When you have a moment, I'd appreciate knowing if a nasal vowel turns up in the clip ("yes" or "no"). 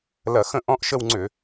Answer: yes